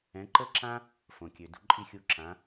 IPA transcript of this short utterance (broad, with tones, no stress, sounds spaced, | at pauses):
ɛ̃˩˥ ǃ ə˥ ǁ ã˥ | f õ˩ kʲ ø˩ d ṳ˩˥ ǃʼ i˥˩ xʲ u˧ ǁ ã˩˥